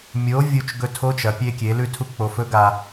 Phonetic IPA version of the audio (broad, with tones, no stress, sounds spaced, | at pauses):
mʲ o˩˧ vʲ u˧ t͡ʃ ɡ ɵ˧ tʰ o˧˥ t͡ʃ ɐ˩˧ pʲ e˧ kʲ e˩˧ l ʉ˧ tʰ u˧˥ k͡p o˩˧ f ɵ˧˥ ɡ a˧